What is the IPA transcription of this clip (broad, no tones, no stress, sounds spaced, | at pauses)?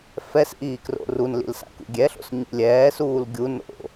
f ɛ s ʔ iː k r o̰ r u n l ḭ l s a̰ k ṵ ɡʲ ɛ ɬ o̰ s ɲ ḭ lʲ ɛː s uː l ɡʲ u n o̰